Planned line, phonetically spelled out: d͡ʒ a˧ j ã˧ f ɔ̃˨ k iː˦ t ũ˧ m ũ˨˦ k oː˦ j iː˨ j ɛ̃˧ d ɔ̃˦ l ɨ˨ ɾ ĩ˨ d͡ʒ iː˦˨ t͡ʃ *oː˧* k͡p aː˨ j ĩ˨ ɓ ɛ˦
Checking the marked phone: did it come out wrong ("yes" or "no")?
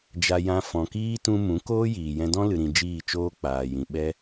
yes